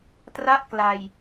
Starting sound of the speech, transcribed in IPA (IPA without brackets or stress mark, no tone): t